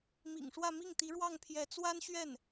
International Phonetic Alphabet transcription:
m ḭ˨˩ ŋ ʂ w ä˥˧ m i˥˩ ŋ t̪ i˧˥ ɻ w ɑ˥˩ ŋ pʰ j ɛ˧˥ t͡s w a˥ n ɕ ɥ ɛ˥˩ n

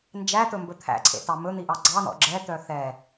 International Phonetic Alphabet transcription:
n d͡ʒ æ t̪ ɵ m b ɵ t̪ʰ æ̰ ǀʰ ḛ t ɑ m ɵ n̪ i ʔ ɑ ɡ͡ǀ ɑ n ɔ̰ ɡ͡ǁ ɛ t̪ œ θ ɛ

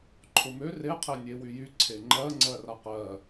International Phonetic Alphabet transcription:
ǃʰ ʊ m ø r e qʰ e nʲ e w y j y ǀʰ e ŋ͡ǃ ɜ ŋ͡ǀ ɜ r a q ɜ

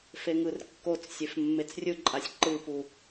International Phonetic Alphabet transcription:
f e ŋ ɯ r kː o t͡s sʲ e f mː e t͡s rʲ ɯ ǃʼ a sʲ ǃ ɯ p u

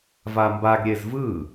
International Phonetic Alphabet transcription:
v a m b a ɡ ɾʲ e z v ɯ

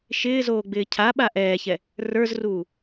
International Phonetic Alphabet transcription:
ʃ ɪː z oː ɡ͡b ɪː cʰ a ɓ a ʔ ɛː ç ɛ | r ə˞ z r uː

